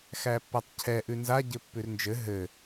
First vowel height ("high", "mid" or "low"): low